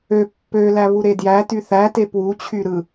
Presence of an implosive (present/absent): absent